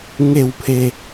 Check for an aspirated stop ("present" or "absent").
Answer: present